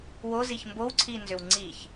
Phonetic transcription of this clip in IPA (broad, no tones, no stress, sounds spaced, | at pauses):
w o z i ç m b o w ǀʰ i n z ʏ w ŋ͡ǀ i ç